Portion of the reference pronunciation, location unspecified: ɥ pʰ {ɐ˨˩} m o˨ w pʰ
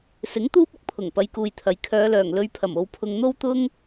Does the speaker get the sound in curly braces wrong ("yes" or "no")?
no